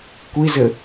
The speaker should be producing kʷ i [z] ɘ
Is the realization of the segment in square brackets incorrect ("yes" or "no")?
no